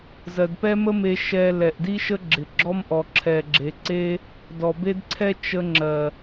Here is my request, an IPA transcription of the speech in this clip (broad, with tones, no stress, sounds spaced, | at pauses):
z ɜ˨ d p ɛ˦ m ə˦ m e˧ ʃ ɛ˧ l ɛ˨ ʔ d i˦ ʃ ə˦ ɡ͡ǁ ɪ˨ ɡ͡ǁ ɔ˦ m ʔ ɔ˨ ǁʰ ɛ˨ ɡ͡ǁ e˨ ǀ e˦ | d ɔ˨ b e˦ d ǀʰ ɛ˦ t͡ʃ ə˧ ŋ͡ǁ ɜ˨